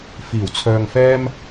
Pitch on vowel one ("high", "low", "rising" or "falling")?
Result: low